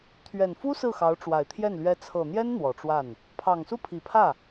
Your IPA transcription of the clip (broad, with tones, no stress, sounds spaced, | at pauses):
t̪ʰ ɥ ɛ˨˩ n f u˥ s ɹ̩˥˩ x ɑ˧˥ ʊ̯ ʈ͡ʂ w a˨˩ ɪ̯ t̪ʰ j ɛ˥˩ n l ɥ ɛ˧˥ t͡sʰ ɤ˨˩ n̪ j ɛ˥ n n̪ w ɔ˨˩ ʈ͡ʂ w a˥˩ n | pʰ ɑ˨˩ ŋ s u˥˩ pʰ i˨˩ pʰ ä˥˩